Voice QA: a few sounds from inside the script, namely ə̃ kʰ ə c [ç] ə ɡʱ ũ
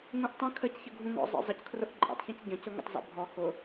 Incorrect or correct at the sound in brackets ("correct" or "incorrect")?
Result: correct